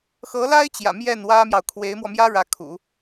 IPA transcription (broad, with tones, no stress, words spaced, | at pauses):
xɤ˧˥la˥ɪ̯t͡ɕjä̰˨˩ mjɛ˥˩nwä˥mjɑ˨ʊ̯ kʰwe˧˥ɪ̯mwɔ˧mjä˥ ɻä˧˥kʰṵ˨˩˦